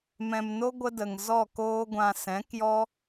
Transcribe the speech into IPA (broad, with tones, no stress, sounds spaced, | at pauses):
m ɛ̃˨ m n o˦ ɡʷ ə˦ d ə˨ ŋ z ɔ˦˨ k oː˦ ɡʷ ã˧ s ɛ̃˨˦ k j ɔ˦